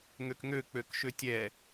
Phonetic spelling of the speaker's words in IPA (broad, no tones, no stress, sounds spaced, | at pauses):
ŋ ø k ŋ ø k͡p ø k ʃ ø tʲ ɛ